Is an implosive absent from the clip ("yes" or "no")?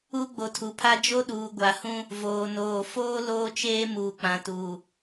no